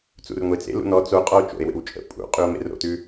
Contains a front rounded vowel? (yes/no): no